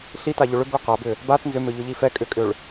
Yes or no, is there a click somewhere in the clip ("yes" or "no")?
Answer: no